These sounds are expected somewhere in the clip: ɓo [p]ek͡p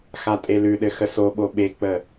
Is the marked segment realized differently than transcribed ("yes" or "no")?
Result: yes